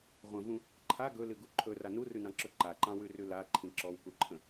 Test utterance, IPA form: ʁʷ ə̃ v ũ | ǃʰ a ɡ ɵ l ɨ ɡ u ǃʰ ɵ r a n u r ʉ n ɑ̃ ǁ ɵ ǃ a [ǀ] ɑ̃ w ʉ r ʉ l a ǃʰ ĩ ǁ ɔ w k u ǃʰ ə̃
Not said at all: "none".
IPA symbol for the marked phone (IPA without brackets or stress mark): ǃ